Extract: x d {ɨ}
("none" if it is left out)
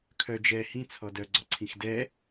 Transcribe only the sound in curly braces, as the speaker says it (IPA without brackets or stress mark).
ɛ